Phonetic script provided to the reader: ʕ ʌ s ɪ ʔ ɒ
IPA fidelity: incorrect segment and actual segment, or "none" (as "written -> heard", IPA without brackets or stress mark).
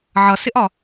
none